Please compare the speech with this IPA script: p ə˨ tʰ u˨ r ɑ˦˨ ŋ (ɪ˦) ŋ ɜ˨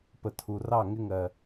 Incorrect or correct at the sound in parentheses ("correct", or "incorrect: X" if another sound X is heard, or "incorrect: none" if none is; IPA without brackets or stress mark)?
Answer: correct